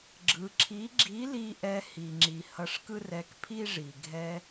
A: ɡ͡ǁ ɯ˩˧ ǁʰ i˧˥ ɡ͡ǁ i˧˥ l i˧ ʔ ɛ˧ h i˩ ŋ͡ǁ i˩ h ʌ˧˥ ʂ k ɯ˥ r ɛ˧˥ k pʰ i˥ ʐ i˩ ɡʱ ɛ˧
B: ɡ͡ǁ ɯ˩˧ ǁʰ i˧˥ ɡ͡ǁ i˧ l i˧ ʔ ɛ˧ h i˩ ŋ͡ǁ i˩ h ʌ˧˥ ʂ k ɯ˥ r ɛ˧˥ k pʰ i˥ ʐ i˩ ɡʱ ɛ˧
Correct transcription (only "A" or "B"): A